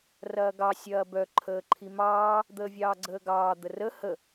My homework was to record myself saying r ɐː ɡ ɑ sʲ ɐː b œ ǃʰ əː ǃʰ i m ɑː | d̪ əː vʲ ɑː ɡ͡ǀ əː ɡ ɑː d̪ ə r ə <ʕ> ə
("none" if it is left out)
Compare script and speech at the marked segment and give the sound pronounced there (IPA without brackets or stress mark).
h